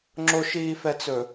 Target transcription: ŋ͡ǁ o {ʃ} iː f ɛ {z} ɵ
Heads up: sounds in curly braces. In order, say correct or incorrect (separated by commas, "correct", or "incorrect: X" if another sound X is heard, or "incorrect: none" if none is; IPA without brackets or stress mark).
correct, incorrect: t͡s